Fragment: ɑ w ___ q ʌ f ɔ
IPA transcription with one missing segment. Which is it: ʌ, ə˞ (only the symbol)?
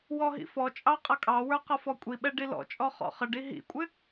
ə˞